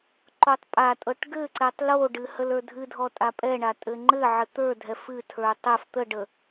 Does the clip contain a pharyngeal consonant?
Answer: yes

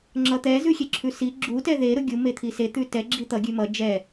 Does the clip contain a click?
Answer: yes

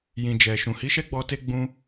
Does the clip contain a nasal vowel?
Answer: yes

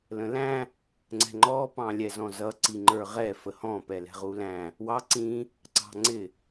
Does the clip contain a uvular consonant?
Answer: yes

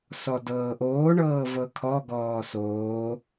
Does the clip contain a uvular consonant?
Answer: no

